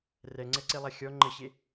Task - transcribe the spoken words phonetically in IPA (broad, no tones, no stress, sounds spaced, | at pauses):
r ɛ ŋ͡ǀ ɛ ǀ e lˠ a xʲ ɔ ŋ͡ǃ ə ɕ e